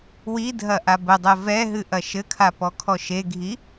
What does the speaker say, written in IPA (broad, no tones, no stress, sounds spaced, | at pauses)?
w i dʱ ɐ ʔ a b ɘ dˤ ɛ v ɛ ɦ ɨ ʔ ɐ ʃ ɘ kʰ a p ɔ kʰ ɔ ʃ e ɡʱ i